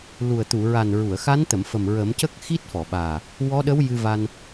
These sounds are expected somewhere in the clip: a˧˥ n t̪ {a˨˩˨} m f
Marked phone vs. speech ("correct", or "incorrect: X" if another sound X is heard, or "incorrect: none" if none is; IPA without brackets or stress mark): incorrect: ə˨˩˨